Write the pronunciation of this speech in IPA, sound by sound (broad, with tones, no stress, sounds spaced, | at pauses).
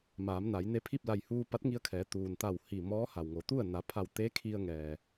m aː˩˧ m n a˩˧ j n e˧˥ pʰ i˥˨ p̚ l a˧˩ j h uː˧ p a˧˥ t̚ ŋ i˧ ə̯ kʰ ɛː˩˧ t̪ uː˩ n t̪ a˧˩ w h i˧˩ m ɔː˧˥ h a˩ w ŋ o˩˧ t̪ u˥˨ ə̯ n a˩˧ pʰ a˧˩ w t̪ e˧˥ kʰ i˧ ə̯ ŋ ɛː˩